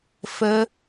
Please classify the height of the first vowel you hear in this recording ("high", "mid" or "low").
mid